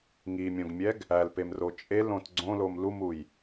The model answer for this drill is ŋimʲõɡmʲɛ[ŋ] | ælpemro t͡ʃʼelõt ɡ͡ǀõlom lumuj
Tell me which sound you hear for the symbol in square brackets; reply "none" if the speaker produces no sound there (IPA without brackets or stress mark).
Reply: ɡ